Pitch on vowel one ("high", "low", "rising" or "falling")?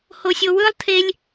low